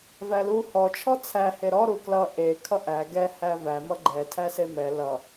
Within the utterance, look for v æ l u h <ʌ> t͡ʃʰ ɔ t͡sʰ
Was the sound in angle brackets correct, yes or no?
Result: no